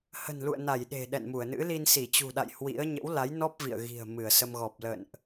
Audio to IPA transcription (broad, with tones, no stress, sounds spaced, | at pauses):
h ə̤˨˩ n l ṵ˧˨ ə̯ n a˧˩ j ɗ e̤˨˩ ɗ ɛ̰˧˨ n m u˧˩ ə̯ n ɨ̰˧˥ l i˧ n s i˧˩ t͡ɕ ṳ˨˩ ɗ a̰˧˨ j h w ḭ˧˥ ə̯ ɲ ə̰˧˥ w l a˨˦ j n ɔ˦˥ p̚ v ḭ˧˨ ə̯ ɣ i̤˨˩ ə̯ m ɨ˧˩ ə̯ s ə˧ m ɣ ɔ˨˩ p̚ l ə̰˧˨ n ʔ